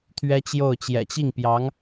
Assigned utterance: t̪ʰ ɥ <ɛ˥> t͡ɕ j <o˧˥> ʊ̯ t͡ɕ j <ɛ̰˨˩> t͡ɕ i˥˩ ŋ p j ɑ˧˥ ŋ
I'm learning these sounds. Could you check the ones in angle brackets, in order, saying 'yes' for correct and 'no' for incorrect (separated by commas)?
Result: yes, no, yes